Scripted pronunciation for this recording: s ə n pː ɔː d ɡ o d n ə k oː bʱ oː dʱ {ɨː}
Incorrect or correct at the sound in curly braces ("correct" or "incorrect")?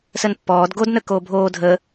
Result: incorrect